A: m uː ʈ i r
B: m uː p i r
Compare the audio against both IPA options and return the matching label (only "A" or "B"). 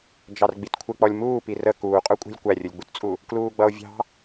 B